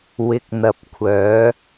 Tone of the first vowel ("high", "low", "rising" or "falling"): low